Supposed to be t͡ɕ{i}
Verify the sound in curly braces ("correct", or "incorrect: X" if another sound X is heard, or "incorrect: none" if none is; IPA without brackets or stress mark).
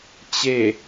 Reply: incorrect: e